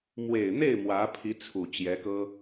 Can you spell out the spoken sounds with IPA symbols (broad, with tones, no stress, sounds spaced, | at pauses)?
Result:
m w e˨˩ ɪ̯ n̪ e˥˩ ɪ̯ m w ä˧˥ pʰ i˧˥ t͡sʰ u˨˩ t͡ɕ j ɛ˧˥ k ɤ˥